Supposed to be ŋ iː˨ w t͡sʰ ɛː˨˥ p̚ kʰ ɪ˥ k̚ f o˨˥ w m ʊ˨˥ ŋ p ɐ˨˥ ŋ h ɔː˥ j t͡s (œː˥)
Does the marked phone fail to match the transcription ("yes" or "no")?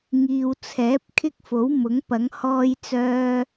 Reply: no